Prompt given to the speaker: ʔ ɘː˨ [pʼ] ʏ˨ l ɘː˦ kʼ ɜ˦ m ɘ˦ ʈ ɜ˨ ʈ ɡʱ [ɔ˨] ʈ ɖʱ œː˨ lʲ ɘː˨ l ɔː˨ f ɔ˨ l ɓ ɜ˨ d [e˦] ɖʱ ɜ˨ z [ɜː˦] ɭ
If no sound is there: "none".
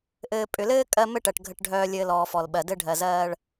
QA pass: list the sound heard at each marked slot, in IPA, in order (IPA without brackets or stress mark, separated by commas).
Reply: pʼ, ə˨, ɘ˦, ɜː˦